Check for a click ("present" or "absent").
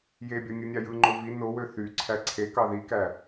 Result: present